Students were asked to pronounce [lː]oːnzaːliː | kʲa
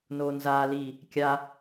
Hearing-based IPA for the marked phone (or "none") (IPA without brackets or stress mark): n